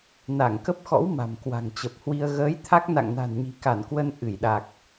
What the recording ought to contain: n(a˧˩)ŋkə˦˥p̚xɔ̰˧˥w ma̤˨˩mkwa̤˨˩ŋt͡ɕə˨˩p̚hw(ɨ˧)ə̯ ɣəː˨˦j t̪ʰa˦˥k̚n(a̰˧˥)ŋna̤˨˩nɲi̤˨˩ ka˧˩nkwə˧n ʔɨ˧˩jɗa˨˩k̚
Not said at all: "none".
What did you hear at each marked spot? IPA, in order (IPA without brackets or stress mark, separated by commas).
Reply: a˧˩, i˧, a̰˧˨